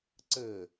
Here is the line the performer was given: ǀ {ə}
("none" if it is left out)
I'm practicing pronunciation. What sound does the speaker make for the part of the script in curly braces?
ə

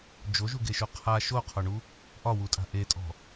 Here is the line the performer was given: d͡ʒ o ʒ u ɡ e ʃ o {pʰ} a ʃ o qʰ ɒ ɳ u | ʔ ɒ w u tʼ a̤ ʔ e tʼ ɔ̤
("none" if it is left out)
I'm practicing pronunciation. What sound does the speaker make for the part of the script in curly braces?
qʰ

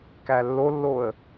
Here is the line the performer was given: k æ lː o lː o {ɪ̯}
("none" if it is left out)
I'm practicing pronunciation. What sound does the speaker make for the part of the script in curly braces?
ə̯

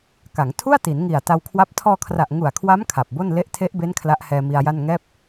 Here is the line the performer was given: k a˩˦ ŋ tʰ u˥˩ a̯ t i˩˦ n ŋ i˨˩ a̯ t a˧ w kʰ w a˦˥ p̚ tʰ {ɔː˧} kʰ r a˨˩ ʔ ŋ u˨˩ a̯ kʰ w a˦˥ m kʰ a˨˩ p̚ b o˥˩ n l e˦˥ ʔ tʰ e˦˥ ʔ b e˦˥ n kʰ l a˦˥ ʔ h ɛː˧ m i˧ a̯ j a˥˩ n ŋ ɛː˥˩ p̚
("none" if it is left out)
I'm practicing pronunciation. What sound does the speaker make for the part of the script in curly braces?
ɔː˧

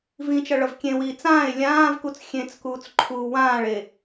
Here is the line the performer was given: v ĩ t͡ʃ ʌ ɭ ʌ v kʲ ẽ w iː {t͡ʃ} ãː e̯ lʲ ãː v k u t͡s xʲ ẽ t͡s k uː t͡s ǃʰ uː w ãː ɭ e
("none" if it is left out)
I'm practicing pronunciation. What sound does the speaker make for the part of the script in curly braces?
t͡s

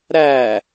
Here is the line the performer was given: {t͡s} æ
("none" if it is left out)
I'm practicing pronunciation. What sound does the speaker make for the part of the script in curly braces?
ɾ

